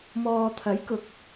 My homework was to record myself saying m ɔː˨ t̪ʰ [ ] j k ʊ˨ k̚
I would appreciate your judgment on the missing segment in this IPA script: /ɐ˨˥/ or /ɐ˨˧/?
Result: ɐ˨˥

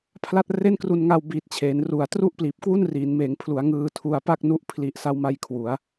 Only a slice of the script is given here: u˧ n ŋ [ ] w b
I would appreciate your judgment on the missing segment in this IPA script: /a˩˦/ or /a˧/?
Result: a˧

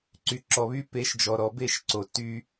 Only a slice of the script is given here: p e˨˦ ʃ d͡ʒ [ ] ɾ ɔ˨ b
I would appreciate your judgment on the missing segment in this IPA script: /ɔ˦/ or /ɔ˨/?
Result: ɔ˨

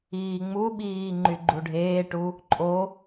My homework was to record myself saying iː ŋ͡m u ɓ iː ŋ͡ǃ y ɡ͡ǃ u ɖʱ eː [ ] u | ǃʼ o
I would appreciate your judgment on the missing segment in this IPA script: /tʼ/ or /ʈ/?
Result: ʈ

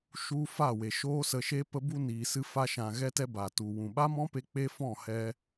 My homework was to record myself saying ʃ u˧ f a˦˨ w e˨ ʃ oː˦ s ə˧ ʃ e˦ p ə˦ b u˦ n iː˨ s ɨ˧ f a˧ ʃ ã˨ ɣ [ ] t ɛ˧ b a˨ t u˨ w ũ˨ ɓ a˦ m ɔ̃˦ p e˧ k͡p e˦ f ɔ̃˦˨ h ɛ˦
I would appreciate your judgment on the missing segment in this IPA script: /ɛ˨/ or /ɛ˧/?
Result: ɛ˧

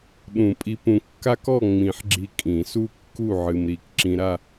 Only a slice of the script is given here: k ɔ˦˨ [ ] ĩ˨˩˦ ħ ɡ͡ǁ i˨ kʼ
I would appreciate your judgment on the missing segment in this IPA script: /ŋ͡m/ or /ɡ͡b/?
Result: ŋ͡m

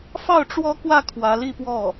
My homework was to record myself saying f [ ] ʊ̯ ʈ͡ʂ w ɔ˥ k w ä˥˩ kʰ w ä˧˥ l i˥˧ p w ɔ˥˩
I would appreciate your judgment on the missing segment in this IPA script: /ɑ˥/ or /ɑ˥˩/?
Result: ɑ˥˩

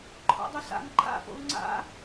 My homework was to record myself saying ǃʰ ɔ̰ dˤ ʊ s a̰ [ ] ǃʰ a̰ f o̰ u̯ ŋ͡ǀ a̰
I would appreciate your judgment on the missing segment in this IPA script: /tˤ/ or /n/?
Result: n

